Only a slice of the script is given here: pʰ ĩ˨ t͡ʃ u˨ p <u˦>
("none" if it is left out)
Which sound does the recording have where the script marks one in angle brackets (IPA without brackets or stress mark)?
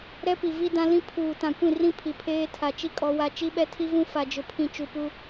u˦